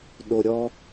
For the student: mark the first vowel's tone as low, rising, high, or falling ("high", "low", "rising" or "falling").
low